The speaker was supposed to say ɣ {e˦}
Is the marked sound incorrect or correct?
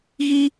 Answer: incorrect